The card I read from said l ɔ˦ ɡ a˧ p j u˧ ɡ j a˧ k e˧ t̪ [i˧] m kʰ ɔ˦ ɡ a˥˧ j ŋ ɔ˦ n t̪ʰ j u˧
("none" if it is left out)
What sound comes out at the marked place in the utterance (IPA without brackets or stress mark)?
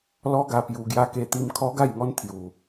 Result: i˧